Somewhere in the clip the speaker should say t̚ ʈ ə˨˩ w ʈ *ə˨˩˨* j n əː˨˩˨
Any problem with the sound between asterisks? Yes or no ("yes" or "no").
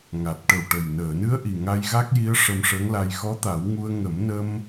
yes